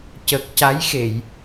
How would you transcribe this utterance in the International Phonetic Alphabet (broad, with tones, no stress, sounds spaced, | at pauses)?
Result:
c ə˨˩ k̚ c a˧˥ j x e˨˩˨ j